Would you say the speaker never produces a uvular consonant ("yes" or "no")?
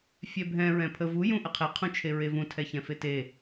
no